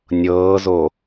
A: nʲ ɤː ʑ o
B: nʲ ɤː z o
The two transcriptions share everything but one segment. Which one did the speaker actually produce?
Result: B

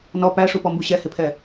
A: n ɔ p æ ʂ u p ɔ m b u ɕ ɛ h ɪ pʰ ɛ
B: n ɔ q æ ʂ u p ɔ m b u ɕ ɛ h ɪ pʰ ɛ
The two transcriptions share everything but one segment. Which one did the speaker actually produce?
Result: A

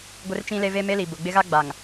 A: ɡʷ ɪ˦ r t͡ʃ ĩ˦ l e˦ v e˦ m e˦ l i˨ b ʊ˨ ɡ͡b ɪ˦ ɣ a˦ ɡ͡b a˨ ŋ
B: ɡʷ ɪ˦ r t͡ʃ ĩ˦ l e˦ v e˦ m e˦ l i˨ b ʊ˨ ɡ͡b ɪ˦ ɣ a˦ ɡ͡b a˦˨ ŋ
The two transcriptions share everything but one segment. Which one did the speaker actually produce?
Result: A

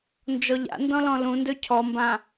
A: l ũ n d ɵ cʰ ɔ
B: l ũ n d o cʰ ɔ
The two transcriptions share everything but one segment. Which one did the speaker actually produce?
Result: A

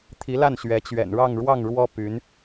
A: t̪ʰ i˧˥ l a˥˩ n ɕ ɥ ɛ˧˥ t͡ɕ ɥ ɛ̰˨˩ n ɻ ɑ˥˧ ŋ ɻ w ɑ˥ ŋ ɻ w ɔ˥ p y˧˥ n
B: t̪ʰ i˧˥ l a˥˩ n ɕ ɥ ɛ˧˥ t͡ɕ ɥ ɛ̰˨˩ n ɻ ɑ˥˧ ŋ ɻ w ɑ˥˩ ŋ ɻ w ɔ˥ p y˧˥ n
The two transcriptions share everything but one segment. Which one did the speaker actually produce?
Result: B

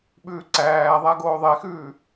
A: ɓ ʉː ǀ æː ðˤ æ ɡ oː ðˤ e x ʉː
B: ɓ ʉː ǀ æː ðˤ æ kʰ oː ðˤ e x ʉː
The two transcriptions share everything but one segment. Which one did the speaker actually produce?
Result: A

